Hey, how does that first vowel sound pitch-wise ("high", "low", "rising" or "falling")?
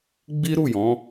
high